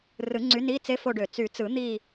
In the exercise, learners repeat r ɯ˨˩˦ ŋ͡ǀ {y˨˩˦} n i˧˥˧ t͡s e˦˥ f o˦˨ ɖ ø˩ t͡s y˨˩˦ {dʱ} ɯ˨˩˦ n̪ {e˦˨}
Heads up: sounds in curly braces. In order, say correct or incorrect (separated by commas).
incorrect, incorrect, incorrect